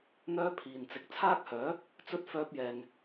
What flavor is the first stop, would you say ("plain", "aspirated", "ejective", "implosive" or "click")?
aspirated